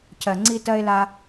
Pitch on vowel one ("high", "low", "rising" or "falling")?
low